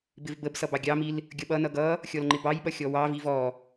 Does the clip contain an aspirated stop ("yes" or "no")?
no